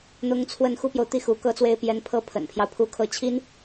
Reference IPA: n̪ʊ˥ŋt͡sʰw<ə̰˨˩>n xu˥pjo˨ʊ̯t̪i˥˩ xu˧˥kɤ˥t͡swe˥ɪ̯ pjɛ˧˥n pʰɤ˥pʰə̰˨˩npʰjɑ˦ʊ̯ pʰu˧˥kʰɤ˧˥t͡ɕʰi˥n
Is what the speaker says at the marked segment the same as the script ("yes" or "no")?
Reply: no